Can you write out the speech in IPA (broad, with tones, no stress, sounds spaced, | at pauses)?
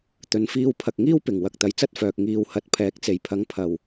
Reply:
t̪ ɵ˨˧ n f iː˧ w pʰ ɐ˨ k̚ ŋ iː˥ w p ɪ˨˩ ŋ w ɐ˨ k̚ t̪ ɐ˨ j t͡s ɐ˥ t̚ f œː˨ k̚ ŋ iː˧ w h ɐ˧ t̚ pʰ ɛː˨˥ k̚ t͡s e˨˩ j pʰ ɐ˨˥ ŋ pʰ ɐ˨˩ w